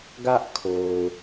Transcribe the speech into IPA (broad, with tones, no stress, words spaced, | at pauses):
ɡä˦ʔkʰo˨ʊ̯